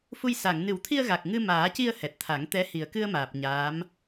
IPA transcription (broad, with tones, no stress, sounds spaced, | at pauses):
f u˧ j s a˨˩˨ ŋ n ɨ˨˩˦ w t̪ʰ i˧ ə̯ ɣ a˨˩ k̚ ŋ ɨ˧ m aː˨˩˦ c i˧ ə̯ h ɛ˨˩ t̚ t̪ʰ a˨˩˦ ŋ t̪ ɛ˧˥ h i˨˩ ə̯ k ɨ˧ ə̯ m aː˨˩ p̚ ɲ aː˧˥ m